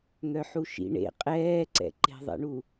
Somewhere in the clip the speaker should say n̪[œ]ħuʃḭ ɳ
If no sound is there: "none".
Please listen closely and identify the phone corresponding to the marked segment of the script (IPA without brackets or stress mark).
œ